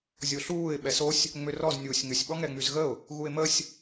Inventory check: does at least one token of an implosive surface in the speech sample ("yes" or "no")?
yes